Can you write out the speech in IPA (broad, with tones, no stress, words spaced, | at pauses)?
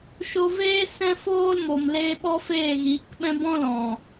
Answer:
ʃo˧ veː˦sɛ̃˦foː˦lmo˨m leː˧ɓɔ˦feː˦˨ ɣiː˨˦kɓɛ̃˦ bɔ̃˦lɔ̃˨